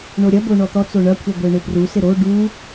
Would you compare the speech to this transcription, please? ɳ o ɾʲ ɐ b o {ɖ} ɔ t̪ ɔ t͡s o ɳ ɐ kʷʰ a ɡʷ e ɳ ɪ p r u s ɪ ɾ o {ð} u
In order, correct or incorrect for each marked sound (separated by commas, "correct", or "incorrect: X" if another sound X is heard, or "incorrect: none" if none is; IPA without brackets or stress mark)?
incorrect: ɳ, incorrect: ɖ